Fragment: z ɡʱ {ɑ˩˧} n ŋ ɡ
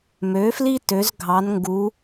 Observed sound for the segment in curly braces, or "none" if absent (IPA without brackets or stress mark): ɑ˩˧